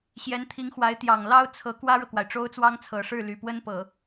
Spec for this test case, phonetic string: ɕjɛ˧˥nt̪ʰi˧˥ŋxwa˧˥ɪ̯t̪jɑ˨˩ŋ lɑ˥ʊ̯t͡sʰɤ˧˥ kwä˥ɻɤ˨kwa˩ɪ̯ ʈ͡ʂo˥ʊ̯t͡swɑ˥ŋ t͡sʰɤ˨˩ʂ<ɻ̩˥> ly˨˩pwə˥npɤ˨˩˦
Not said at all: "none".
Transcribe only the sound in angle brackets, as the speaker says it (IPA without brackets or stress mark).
ɻ̩˥˩